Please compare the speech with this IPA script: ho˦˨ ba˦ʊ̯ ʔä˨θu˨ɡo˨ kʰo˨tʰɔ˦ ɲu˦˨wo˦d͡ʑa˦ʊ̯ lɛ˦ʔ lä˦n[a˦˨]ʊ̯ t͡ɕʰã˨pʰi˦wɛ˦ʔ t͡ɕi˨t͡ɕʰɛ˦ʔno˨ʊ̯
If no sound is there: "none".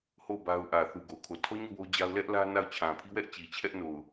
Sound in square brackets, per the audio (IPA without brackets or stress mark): a˦˨